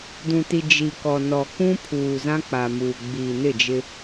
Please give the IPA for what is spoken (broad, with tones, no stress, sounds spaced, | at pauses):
d ũ˨ t i˨ d͡ʒ i˨ k ɔ˨ n ɔ˨ k ũ˦ pʰ uː˨ z ã˦ k͡p a˨ m uː˨ ɡ͡b iː˨ n ɪ˦˨ d͡ʒ ɪ˦